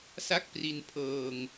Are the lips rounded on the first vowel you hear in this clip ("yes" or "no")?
no